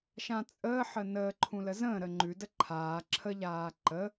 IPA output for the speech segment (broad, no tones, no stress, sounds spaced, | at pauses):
ʃ ã t͡sʼ əː ħ ə n əː ǃʰ ũ l ə z ə̃ː ɾ ə ŋ͡ǃ ʉ d ə ǃʰ aː ǁʰ ə ʎ aː ǃ ə